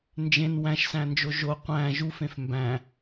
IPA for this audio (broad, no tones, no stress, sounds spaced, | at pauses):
n d͡ʒ ẽ n w æ̃ ʃ s æ̃ n d͡ʒ o ʒ o qʷ æ̃ ʒ u f ẽ f m b æ̃